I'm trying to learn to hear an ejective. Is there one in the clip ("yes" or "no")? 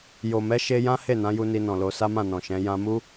no